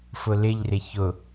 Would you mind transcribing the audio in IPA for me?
fʊlɪʎrɪ çʊ

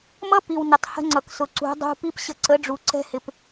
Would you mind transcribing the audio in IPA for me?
mʌ˦pi˨w nʊ˨tˤhə̤˧ŋ͡ǀʌ˨ksʊ˨ ǀṳ˨˦ dˤṳ˧ pi˦p ɕə˧ ǀə˨˦ɖ͡ʐu˨ ǀɛ̤˦hɪ˧p

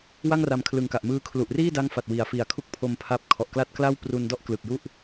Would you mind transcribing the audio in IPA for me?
wa˥˩ŋra˧mkʰlɯ˨˩ŋka˨˩ʔ mɯː˦˥kʰlu˨˩ʔ riː˥˩da˦˥ŋ fa˨˩t̚wi˩˦a̯ fi˨˩a̯kʰu˦˥k̚pʰo˧m pʰa˥˩p̚ kʰɔ˨˩ʔkla˥˩t̚kla˥˩w pru˧ndɔ˥˩ʔ klɯ˨˩k̚ju˥˩ʔ

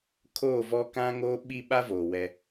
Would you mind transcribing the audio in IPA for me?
kʰoː˦˨vɔ˦ kã˦ŋoː˦ ɓi˦ ɓa˦voː˨ wɛ˦

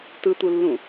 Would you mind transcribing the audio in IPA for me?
tɯt̪ulːũ

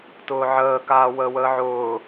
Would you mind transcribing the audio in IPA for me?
tʊːʕəː kaːwəːwəːʕʊː

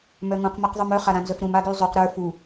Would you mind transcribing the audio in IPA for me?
mœŋũq maqðˤumœ χaɾãnzœfɾũm aɡyzˤyq ɾə˞ fu

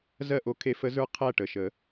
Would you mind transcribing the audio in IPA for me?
zɜ˥˨ʔo˧˥kʰe˧˥fə˧˥ zə˞˧˥ qʰæ˥˨ʈə˩˧˩ʃə˨˩˦

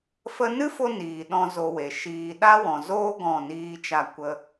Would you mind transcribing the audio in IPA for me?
fə˧nɨ˦fo˧ niː˨ɗɔ̃˧ zo˧we˨ʃiː˧ ɗa˦wɔ̃˨zoː˦ ɡɔ̃˦˨niː˦t͡ʃa˦˨kʷə˦

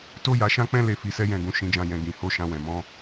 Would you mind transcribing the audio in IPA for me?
to˦ja˧ʃã˦ k͡pɛ̃˦ le˦˨fi˨˦sɛ˦ jɛ̃˧ɡũ˨ ʃĩ˧d͡ʒã˧ jɛ̃˨ ɡĩ˨ho˨˦ ʃã˧wɛ̃˨ mɔ̃˨˦

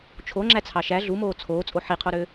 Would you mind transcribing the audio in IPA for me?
t͡ʃʰoŋ͡ǁæt͡sʰɑ ʃæ ɮumoː t͡sʰoːt͡sʼo ħiqʰoɾø

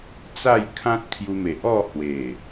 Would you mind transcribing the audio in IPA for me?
t͡sa˥˧j kʰã˦t̚kʰju˧me˨ʔɔ˥˧ hwe˨˩

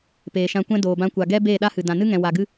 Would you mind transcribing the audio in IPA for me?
peː˨ʃã˧kʷɛ̃˦ doː˨bã˧kʷa˨ ɡɛ˦ beː˦˨ɗa˦hɨ˨ dã˨nɨ˦ŋɛ̃˨ wa˨ɡɨ˦

